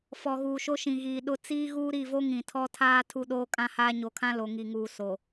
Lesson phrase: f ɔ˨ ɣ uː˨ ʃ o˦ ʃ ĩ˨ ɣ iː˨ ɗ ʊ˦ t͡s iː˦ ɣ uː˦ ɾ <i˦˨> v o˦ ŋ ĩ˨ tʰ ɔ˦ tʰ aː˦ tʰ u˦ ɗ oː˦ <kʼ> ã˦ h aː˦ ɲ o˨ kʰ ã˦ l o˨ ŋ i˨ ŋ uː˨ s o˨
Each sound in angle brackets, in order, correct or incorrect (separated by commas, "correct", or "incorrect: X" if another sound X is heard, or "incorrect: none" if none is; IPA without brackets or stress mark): correct, correct